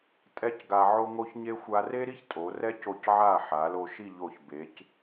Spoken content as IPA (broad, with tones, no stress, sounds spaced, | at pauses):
tʼ ɛ˥ c ɡ a˧ ʕ o˥ ŋ o˥ ç ɲ e˥ xʷ a˧ r e˥ ɾ i˥ ç tʼ o˩˧ r ɛ˥ c o˧˩ c ʕ a˧˩ ħ a˩˧ l o˧ ʃ i˥˧ ʎ o˧˩ ç b e˩˧ c